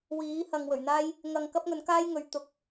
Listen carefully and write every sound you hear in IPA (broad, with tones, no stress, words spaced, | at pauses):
wiː˨˥hɐ˨ŋwɵ˨˩ɥn̪aː˥j | ŋɐ˧ŋ kɐ˥p̚ŋɵ˨˥n kaː˥jŋɵ˨˥ɥ t̪ʊ˨˥k̚